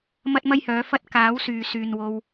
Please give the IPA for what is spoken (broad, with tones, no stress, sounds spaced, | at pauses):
m ɐ˥ t̚ m ɐ˥ j h œː˨˥ f ɐ˥ t̚ k aː˨˥ w s yː˨ s yː˨ n w o˧ w